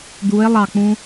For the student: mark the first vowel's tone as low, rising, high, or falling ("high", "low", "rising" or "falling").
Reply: rising